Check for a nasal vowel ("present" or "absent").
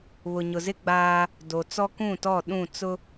present